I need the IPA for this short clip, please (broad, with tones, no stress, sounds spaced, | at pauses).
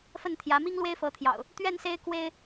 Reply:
f ə˥˨ n t̪ʰ j ä˨˦ m i˦ ŋ l w e˦ ɪ̯ f ɤ˨˦ t̪ʰ j ɑ̰˨˩ ʊ̯ | t̪ ɥ ɛ˥˨ n s e˦ ɪ̯ k w e˦ ɪ̯